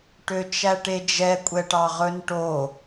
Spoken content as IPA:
ʈ ø t͡ʃ æ ʈ e d͡ʒ ɛ kʷʼ ɛ ʈ ɑ ʁ ɵ n ʈ o

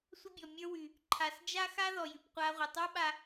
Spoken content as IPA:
sʷ ə˥ bʲ ɔ˩ mʲ ə˞˥ w y˩ | ǃʰ a˩ s d͡ʒ a˥ x a˥ ð ɔ˩ j y˩ p qʷ a˧ ʁʷ ə˩ tˤ ə˞˥ ɓ a˧

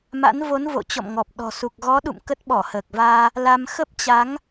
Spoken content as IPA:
m a̰˧˥ n v o˨˦ n v o̰˧˨ t͡ɕ ɔ̰˧˨ m ŋ ɔ˨˩ p̚ ɗ ɔ̤˨˩ s u˨˩ k̚ ɣ ɔ˨˦ ɗ ṵ˧˨ m k ə˦˥ t̚ ɓ ɔ˧˩ h əː˨˩ k̚ v aː˧ | l a˧ m x ə˦˥ p̚ t͡ɕ a˨˦ ŋ

